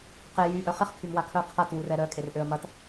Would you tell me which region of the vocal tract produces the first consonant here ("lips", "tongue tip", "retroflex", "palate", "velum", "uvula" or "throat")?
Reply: uvula